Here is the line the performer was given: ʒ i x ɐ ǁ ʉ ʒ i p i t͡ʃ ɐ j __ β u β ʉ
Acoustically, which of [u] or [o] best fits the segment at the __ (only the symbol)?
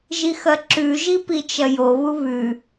o